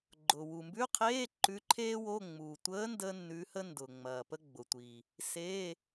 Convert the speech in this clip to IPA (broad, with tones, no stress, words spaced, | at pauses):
ɡ͡ǃʊ˨˩ wu˨˩mbʉ˧˥˧qʰeː˧˥˧ ǃʉ˧˥ǃʰeː˥wo˧˥˧ ŋ͡mu˨˩tʷəː˧˥ ndəː˥nːʉ˧˥hə˥ndʊː˨˩ ŋ͡mɐː˨˩pə˥ ɡ͡bʊ˨˩tʷi˨˩ | se˧˥˧